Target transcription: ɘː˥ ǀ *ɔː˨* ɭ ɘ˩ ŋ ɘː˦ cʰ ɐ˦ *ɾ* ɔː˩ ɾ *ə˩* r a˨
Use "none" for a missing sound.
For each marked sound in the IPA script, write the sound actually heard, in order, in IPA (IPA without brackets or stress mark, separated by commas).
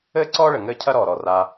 ɔː˥, ɾ, ɔ˩